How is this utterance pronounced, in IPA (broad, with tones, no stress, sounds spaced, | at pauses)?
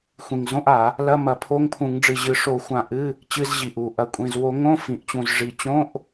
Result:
xʷ ĩ˨˩ ŋ z õ˧˥˧ ʔ a˧˩˧ | l ɐ˧˥˧ m ɐ˧˩˧ pʰ o˧˥˧ ŋ pʰ ũ˧˩˧ ŋ ɖ͡ʐ ɨ˨˩ ʑ ɨ˨˩ ʂ o˧˩˧ xʷ ã˨˩ ʔ ɨ˧˥˧ | t͡ɕ ɨ˧˥˧ z ʑ i˨˩ ʔ u˨˩ ʔ ɐ˨˩ kʷʼ ĩ˨˩ z w o˧˩˧ ŋ õ˧˥˧ f ĩ˨˩ ʔ t͡ɕ ũ˨˩ z ʐ i˨˩ t͡ɕ õ˧˥˧ ʔ